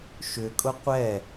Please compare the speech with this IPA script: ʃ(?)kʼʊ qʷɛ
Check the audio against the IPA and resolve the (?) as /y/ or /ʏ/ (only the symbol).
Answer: ʏ